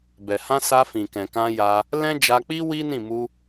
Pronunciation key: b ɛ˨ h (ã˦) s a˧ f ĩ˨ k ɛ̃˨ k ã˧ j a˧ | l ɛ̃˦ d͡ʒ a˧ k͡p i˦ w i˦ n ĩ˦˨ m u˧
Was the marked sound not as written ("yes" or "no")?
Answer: yes